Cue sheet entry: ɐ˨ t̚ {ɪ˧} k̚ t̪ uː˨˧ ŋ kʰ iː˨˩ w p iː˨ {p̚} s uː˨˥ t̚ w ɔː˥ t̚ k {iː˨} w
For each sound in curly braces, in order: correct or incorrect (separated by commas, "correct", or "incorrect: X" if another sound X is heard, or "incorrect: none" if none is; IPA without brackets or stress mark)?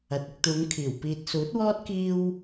correct, incorrect: t̚, incorrect: iː˧